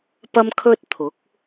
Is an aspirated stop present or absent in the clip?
present